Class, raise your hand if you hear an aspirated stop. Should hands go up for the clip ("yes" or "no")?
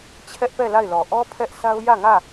yes